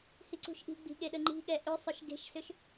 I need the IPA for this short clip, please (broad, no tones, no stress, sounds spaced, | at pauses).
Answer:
h i ǀ ṳ ʃ ʔ i̤ ɡ͡b i̤ ɠ e ɗ ə ŋ͡ǃ i̤ ɠ ɛ ʔ ʏ sˤ ʏ ʃ ɡ e̤ ʃ s ʏ ʃ